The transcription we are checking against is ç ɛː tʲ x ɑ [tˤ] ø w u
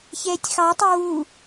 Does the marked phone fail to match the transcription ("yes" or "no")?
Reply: no